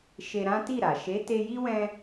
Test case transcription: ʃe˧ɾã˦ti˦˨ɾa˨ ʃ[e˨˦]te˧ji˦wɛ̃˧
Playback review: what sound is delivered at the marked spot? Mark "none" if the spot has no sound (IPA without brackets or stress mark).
e˨˦